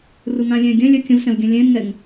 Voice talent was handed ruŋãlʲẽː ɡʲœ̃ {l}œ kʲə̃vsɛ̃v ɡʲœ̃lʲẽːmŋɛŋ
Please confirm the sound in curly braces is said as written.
no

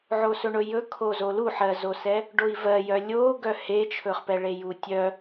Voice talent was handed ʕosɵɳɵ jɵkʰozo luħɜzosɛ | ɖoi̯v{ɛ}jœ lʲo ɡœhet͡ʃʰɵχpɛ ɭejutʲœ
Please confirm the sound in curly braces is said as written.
no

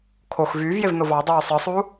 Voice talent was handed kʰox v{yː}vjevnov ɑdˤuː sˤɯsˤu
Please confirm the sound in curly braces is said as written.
yes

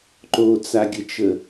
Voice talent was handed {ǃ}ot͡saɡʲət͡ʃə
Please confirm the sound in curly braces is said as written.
yes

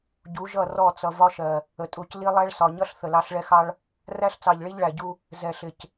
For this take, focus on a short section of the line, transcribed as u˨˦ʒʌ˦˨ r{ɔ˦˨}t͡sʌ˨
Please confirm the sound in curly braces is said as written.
yes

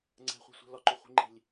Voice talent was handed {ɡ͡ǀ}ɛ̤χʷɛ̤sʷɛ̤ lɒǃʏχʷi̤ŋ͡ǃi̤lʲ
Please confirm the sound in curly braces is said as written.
no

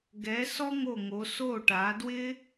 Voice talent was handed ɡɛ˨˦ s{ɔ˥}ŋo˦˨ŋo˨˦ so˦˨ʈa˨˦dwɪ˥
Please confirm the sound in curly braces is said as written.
yes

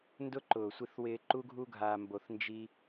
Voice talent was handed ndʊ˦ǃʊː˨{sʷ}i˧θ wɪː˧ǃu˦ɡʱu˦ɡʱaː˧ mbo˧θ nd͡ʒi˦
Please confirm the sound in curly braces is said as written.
yes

